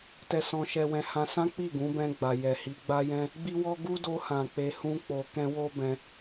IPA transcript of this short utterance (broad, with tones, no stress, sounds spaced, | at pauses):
t ɛ˧ s ɔ̃˧ ʃ ɛ˧ w ɛ̃˧ h ã˧ s ã˦ k͡p i˦˨ ɡ ũ˨˦ b ɛ̃˧ ɡ͡b a˨ j ɛ˨ h i˧ ɡ͡b a˦ j ɛ̃˦ | ɡ͡b i˦ w ɔ˦ ɡ u˦ d o˧ h ã˨ k͡p e˧ h ũ˦ k͡p o˧ k ɛ̃˦ w o˦ b ɛ̃˧